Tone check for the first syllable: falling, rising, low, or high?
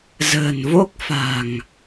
low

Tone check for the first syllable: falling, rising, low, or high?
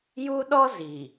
high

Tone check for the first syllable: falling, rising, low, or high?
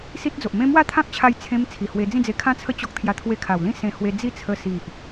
high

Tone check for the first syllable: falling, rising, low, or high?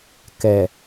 low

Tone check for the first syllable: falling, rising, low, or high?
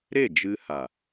falling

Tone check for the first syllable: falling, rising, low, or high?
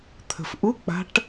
low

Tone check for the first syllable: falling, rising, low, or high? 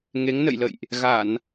rising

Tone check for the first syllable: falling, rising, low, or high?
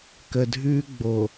low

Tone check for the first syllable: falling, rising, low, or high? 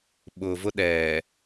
low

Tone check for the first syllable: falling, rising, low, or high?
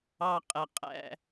low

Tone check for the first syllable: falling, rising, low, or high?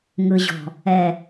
low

